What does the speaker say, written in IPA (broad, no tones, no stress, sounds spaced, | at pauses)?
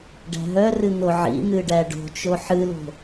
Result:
ɖ æ̤ ɦ œ r ɨ n̪ o ʕ ḭ n̪ ɨ ɖ æ ɖ o̤ t͡ʃ o ħ ɨ l o̤